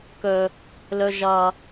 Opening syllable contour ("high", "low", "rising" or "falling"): low